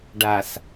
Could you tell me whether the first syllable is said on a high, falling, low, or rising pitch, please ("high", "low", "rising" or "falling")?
low